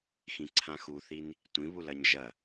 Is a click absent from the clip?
no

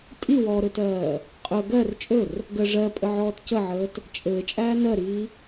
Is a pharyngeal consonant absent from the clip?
no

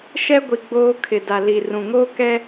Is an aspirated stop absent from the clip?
no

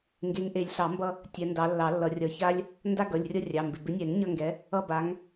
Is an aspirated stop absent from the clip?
yes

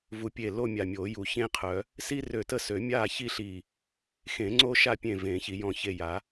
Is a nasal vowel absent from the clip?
no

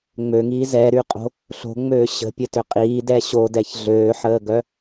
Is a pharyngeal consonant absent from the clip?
no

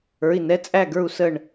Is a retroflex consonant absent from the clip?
no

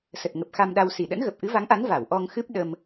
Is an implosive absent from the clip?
no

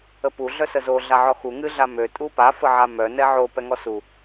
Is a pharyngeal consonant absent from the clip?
no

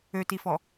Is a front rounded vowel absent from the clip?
no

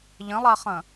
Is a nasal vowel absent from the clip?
no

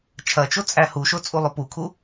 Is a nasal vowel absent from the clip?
yes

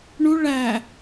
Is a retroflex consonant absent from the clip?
no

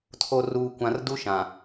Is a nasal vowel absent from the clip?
no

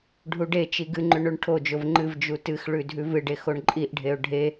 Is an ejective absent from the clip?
no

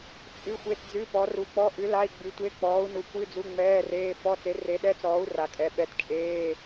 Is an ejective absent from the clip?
no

